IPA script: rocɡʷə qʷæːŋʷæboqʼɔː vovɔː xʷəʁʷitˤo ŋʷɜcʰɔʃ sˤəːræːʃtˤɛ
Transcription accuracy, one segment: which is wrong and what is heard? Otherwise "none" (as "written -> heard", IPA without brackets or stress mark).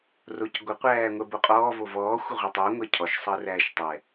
æ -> ɜ